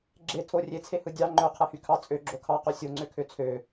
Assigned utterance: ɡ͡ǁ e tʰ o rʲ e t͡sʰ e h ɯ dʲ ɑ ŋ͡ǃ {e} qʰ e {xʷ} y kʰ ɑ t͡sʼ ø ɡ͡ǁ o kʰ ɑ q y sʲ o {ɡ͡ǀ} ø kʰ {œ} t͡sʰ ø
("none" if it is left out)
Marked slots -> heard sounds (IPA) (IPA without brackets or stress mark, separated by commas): ø, h, ŋ͡ǀ, ø